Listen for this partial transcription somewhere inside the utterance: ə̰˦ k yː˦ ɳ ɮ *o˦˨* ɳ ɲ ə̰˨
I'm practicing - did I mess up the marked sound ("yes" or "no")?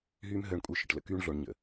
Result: yes